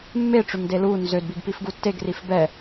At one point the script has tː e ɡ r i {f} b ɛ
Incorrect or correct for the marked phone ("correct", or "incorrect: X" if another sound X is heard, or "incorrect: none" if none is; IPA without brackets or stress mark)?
correct